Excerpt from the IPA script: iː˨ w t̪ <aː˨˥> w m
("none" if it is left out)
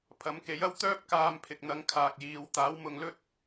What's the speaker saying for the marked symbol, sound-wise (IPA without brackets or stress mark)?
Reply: aː˨˥